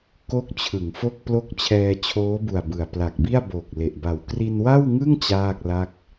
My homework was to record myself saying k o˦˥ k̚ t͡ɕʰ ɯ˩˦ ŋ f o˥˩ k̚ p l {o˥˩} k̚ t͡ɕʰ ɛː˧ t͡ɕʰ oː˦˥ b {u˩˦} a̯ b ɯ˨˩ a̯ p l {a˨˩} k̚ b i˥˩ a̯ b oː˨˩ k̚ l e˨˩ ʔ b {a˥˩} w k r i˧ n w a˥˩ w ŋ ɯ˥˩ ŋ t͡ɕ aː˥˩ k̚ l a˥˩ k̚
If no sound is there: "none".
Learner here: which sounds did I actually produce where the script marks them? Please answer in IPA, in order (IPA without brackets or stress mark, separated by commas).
o˥˩, u˨˩, a˨˩, a˨˩